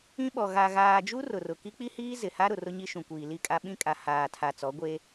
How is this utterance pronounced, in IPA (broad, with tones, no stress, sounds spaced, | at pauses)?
ĩ˦ ɓ ɔ˨ ɣ a˨ ɣ aː˨ d͡ʒ u˦ r ʊ˨ r ʊ˨ k i˦ k͡p i˦ h iː˦ z ɪ˨ h a˦ ɾ ʊ˨ r ʊ˦ ɲ i˦ ʃ ũ˨ kʷ iː˨ l i˦˨ kʼ a˦ ɓ ĩ˦ kʼ a˨ h aː˨ tʰ a˨ t͡s ɔ˨˦ ɡʷ e˦